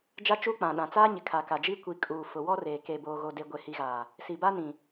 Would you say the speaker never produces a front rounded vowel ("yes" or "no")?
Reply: yes